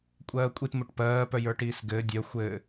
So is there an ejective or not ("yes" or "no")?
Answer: yes